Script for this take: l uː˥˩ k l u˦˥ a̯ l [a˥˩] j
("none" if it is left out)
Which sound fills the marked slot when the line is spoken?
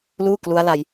a˧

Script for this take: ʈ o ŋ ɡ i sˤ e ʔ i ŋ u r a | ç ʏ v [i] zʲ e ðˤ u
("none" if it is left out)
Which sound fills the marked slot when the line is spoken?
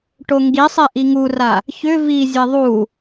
i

